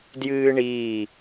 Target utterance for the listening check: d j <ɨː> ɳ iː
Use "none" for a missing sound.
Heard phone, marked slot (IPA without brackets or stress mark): ɨː